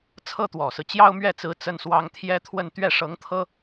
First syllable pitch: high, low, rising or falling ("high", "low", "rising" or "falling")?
high